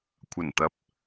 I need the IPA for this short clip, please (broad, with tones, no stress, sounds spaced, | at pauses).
kʷʰ ɐ˨˩ n t̪ ɐ˨˥ p̚